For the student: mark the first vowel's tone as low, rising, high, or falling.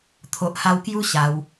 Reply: low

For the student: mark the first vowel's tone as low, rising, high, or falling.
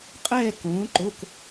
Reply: falling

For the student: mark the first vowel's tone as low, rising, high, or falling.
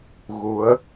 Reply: rising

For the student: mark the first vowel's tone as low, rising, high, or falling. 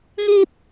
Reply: high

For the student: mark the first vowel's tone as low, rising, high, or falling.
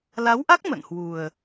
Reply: rising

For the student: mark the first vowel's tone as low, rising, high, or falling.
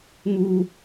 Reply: high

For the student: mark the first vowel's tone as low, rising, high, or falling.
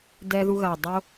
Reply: high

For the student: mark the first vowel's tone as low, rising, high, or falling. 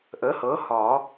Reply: rising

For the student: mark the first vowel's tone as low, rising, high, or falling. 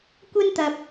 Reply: high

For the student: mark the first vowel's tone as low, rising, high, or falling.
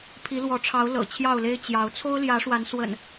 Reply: rising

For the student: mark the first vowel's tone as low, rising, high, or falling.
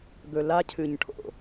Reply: low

